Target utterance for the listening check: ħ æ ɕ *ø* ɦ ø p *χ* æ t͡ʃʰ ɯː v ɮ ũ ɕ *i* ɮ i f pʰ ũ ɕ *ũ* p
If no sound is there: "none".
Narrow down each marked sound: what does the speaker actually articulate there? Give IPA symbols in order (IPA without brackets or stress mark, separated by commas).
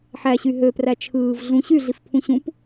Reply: y, r, y, ũ